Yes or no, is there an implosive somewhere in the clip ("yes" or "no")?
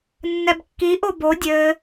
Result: no